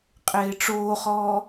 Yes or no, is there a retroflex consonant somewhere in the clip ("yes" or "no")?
yes